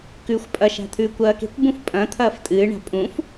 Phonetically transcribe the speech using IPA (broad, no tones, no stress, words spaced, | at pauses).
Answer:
kʉːxʷpʼɐʃa̤ t̪ʰʉːkʷɐːke̤kʷbũf pʼɐ̃ t̪ʰɐːftʼɨːɳa̤ pʼũf